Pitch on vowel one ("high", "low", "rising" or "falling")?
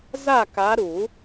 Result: falling